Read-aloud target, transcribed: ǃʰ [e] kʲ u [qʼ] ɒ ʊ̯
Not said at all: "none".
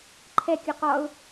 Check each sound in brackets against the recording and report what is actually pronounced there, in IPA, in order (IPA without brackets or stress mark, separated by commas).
ɛ, q